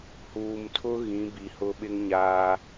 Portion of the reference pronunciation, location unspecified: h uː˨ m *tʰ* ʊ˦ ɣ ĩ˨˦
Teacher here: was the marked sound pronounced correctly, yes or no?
yes